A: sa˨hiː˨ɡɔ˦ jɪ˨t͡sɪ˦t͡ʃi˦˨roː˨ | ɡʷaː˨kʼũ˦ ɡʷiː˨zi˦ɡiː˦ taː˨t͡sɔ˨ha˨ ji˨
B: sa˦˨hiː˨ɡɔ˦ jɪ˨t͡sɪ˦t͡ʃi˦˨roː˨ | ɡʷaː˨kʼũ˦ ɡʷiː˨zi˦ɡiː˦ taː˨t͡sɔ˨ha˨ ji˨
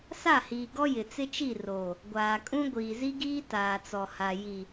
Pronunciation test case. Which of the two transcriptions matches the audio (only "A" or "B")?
B